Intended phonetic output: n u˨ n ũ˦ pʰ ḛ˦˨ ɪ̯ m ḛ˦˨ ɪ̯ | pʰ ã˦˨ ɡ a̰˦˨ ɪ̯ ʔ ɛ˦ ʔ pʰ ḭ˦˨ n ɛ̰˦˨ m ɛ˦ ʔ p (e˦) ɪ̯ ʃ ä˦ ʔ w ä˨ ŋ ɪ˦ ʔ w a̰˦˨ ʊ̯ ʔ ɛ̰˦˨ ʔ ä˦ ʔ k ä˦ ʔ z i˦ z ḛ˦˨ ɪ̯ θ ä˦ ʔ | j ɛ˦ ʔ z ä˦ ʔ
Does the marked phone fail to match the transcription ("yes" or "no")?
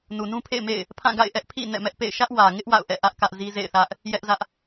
yes